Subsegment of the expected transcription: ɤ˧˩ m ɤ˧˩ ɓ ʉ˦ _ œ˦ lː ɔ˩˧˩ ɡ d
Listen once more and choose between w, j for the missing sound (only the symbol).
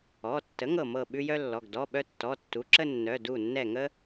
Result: j